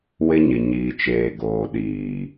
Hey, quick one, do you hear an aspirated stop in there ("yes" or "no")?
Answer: no